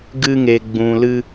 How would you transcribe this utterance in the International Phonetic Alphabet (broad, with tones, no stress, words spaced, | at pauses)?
ɡɨ˦ŋe˧ ɡ͡bũ˧lɨ˦